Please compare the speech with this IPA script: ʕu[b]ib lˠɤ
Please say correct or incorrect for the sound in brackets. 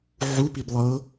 incorrect